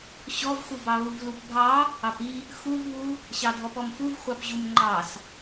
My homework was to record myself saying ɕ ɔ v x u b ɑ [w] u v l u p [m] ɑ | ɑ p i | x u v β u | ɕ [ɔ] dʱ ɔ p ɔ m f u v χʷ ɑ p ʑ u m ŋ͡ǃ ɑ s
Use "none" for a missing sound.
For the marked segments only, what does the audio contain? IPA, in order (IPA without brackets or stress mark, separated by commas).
β, bʱ, ɑ